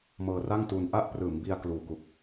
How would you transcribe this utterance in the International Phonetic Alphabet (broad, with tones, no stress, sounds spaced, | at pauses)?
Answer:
m ɤː˧ r a˥˩ ŋ t uː˧ n ʔ a˥˩ ʔ p r ɯː˩˦ m b i˧ a̯ k l uː˨˩ k u˨˩ k̚